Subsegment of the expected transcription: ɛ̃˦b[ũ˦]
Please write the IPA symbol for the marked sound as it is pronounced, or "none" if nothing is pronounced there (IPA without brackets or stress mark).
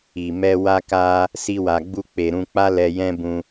ũ˧